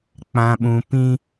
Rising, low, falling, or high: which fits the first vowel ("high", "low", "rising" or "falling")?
low